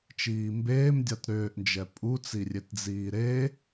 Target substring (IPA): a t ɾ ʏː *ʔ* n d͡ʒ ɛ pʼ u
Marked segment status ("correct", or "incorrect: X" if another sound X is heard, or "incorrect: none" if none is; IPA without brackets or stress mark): correct